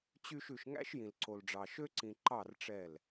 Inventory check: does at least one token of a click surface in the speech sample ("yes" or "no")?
yes